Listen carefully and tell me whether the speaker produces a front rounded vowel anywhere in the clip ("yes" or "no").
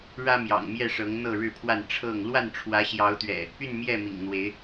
yes